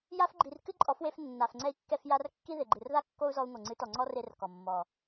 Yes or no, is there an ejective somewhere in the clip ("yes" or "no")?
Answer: yes